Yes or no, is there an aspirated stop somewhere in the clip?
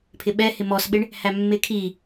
yes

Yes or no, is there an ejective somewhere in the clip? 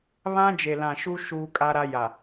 yes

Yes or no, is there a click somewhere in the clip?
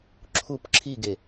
yes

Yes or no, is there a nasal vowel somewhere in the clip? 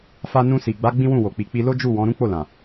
yes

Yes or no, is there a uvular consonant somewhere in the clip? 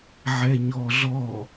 no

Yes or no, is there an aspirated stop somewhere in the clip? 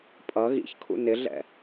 yes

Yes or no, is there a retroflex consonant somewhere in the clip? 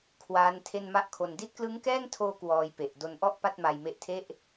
no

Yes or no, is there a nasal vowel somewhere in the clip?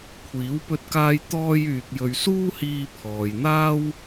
no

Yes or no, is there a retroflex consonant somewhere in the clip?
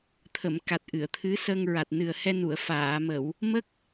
no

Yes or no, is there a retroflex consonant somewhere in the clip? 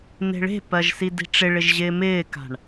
yes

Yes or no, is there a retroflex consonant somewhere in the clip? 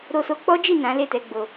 no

